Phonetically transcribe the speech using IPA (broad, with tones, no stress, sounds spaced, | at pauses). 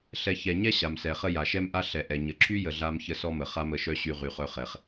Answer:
ɬ ɛ˨ ç ɛ˩ ɲ ɛ˥ ɕ a˩ m s ɛ˩ χ ə˦ j a˩ ʃ ɛ˦ m ʔ a˦ ɬ ɛ˩ ʔ ɛ˩ ɲ ə˩ ǁʰ y˥ j ə˨ ɮ a˥ m ç ə˥ s ɔ˥ m ə˩ χ a˥ m ə˩ ʃ œ˦ ɕ y˦ ʁ y˨ χ œ˦ χ ɛ˨ χ